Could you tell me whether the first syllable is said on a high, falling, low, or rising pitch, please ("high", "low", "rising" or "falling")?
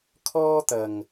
high